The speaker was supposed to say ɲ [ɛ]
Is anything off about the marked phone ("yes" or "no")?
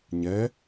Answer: no